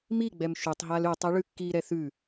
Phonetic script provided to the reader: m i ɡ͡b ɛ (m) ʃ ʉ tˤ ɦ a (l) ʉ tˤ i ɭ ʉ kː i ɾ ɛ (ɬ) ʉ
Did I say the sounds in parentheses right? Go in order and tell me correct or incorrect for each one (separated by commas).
correct, correct, incorrect